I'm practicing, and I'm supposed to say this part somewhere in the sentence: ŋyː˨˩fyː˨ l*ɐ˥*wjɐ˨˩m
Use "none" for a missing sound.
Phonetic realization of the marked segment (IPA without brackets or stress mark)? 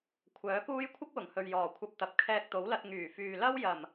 ɐ˥